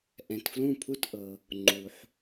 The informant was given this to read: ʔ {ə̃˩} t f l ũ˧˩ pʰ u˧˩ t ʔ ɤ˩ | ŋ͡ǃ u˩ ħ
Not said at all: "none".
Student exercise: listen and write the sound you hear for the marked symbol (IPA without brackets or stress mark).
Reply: ɛ̃˩